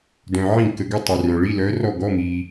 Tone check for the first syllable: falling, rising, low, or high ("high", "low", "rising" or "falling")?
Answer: low